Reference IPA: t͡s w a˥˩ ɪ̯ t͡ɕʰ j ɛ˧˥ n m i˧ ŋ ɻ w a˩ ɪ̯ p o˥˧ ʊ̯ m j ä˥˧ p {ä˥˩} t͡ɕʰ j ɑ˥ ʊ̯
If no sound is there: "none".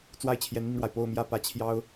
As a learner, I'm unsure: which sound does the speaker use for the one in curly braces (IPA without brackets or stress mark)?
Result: ä˥˩